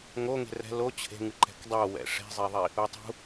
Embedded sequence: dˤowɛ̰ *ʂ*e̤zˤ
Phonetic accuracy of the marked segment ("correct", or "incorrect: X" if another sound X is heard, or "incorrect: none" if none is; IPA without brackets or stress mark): correct